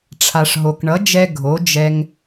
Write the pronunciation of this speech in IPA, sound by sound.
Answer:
ʈ͡ʂʰ a˩ ʂ ɦ o˩ k ɳ ʌ˩˥ d͡ʒ ɛ˧ ɡʱ o˩˥ d͡ʒ ɛ˧ ŋ

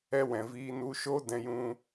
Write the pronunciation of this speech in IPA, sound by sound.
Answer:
ɛ˧ w ɛ̃˨ v iː˧ n u˧ ʃ o˦ d ɛ̃˧ j ũ˧

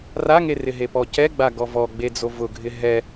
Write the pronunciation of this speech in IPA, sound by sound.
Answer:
r a ŋ e r ɪ ɦ e p ɔ c ɛ ɡ͡b a ɡ ɔ v ɔ ɡ͡b e d͡z o v ʊ ɡʱ ɪ ɦ ɛ

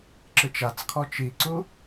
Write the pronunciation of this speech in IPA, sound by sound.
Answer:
ǁ ɯ t͡ʃ a t͡s kʰ ɔ t͡ʃ i ǀ u

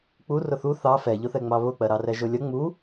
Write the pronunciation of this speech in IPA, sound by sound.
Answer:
k͡p u r ʊ θ u θ ɑ f ɛ ʎ ʊ θ ɛ ŋ͡m ɑ β ʊ k͡p ɜ ɾ ɑ r ɛ ʒ ʊ lʲ ʌ ŋ͡m u

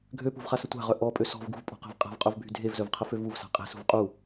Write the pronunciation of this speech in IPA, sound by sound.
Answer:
ɡʱ ø p ṳ v χ a s ə tʷ a̤ ʁ œ ʔ ɔ pʼ ø s ɔ̤ v ɡ ṳ v pʼ ɔ̤ q ɛ̤ v qʼ a̤ v qʼ œ v bʱ y dʱ e v z œ v qʰ ə f ø v u v s a̤ qʼ e̤ s ṳ v qʼ u

